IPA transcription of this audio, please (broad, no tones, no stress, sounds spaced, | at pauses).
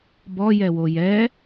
b ɔ j ɛ w o j ɛ